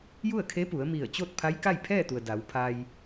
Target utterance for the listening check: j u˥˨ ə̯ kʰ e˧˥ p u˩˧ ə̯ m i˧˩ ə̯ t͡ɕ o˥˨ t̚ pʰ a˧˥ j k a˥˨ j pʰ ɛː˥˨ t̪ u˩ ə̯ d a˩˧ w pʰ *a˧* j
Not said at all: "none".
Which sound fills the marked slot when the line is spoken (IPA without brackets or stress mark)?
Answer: a˧